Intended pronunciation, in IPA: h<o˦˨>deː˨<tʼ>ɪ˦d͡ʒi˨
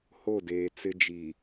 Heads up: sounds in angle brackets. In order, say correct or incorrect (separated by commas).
correct, incorrect